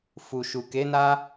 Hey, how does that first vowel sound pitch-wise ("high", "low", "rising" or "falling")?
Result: low